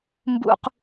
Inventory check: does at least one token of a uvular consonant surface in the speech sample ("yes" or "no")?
yes